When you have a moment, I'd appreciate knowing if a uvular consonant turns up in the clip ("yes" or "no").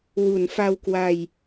no